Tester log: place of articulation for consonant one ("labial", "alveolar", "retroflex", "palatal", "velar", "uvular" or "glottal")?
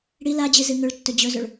retroflex